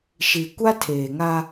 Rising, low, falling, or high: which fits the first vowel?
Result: low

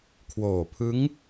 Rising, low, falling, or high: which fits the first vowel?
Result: low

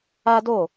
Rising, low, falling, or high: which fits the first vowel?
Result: high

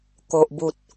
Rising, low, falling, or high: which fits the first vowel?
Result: low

